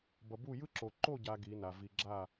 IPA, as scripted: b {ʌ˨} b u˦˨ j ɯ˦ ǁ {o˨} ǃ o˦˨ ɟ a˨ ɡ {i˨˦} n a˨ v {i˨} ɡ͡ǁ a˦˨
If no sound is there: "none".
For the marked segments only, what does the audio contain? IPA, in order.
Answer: ʌ˨, o˨, i˨˦, i˨

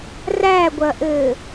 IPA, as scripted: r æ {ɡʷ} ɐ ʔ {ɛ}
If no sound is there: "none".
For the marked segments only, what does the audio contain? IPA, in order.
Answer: ɡʷ, ɘ

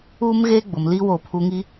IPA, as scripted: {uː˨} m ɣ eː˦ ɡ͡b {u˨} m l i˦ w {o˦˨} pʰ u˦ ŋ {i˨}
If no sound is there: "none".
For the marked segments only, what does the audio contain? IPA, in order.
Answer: uː˦, ʊ˨, o˦˨, i˦

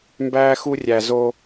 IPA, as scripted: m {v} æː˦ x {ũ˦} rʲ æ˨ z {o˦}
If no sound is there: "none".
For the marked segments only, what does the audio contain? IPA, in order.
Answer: b, u˦, o˦

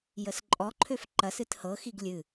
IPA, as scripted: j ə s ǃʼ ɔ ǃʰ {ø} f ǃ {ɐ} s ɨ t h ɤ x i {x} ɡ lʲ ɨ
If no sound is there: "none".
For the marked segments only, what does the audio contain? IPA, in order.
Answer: ø, ɐ, none

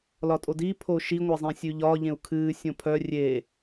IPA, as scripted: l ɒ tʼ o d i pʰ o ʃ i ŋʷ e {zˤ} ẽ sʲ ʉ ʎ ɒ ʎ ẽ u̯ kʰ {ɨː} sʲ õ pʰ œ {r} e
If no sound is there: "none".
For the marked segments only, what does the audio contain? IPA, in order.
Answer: zˤ, ɨː, rʲ

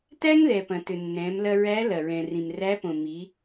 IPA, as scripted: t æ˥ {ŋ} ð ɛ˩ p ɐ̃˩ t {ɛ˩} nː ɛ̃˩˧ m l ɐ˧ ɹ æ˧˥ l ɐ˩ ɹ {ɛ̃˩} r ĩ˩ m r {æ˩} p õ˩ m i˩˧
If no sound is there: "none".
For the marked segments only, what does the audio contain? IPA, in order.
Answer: ŋ, ʏ˩, ɛ̃˩, æ˧˥

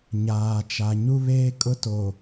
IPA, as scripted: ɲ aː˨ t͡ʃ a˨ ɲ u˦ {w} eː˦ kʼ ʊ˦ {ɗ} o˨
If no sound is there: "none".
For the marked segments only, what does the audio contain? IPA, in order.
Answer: β, t

